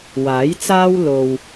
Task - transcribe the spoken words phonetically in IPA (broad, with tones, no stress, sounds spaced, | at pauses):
w aː˨˥ j t͡s aː˥ w l o˧ w